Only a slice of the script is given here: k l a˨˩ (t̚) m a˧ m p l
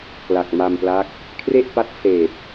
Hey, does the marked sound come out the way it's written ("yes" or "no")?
no